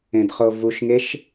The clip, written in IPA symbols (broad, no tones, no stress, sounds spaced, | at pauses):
ẽ d χ o v u ʃ ŋ e ʃ